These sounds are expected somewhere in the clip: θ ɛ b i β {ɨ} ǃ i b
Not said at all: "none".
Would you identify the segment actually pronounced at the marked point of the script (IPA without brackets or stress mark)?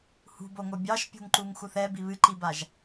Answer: ɨ